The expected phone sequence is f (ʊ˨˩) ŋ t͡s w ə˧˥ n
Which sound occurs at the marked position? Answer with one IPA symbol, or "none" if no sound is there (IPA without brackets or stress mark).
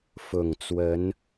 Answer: ʊ˨˩